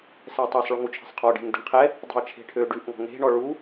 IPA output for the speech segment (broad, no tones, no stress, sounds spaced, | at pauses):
s ɛ tˤ ɛ sˤ ɭ ʉ ŋ u t͡ʃʰ ɛ̤ sˤ qʰ ɔ ɖ e̤ ŋ d ɛ̤ ɳ qʰ ɛ | dˤ ṳ ɐ̯ t͡ʃʰ e̤ ʈʰ ø ɖ ʉ ʔ ŋ ɔ̤ ŋ e̤ ɳ ɔ ɭ u